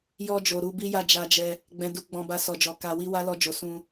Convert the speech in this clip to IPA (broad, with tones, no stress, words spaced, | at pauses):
jɔ˧d͡ʒo˨ ɾu˧bi˦ ja˦˨d͡ʒa˧d͡ʒɛ˧ | ɡ͡bɛ̃˦du˦ ɡ͡bɔ̃˧ba˧ sɔ˨d͡ʒɔ˨ ka˧wi˦ wa˦lɔ˧d͡ʒo˨ sũ˧